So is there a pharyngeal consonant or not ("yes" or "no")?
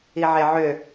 yes